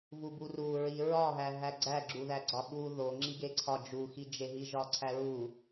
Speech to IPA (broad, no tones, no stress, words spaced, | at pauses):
vuburu ɹiɹɒɦæ ɦæɡ͡ǀæɡ͡ǁuðæ ɡ͡ǀɒɓu ðo ŋ͡ǁiɡeǀʰɒ d͡ʒuxid͡ʒe ɦiʒɒǀʰæɹu